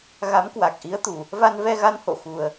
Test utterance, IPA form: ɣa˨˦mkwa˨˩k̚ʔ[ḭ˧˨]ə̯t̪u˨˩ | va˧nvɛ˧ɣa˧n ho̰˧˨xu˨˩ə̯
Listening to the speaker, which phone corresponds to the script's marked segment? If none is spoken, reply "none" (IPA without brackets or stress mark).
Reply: i˨˦